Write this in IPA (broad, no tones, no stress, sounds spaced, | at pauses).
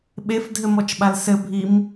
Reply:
ɓ e f dʱ ɘ m ɔ t͡ʃ ɓ a l s ɘ bʱ i m